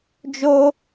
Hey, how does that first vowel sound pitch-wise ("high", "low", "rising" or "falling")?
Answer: high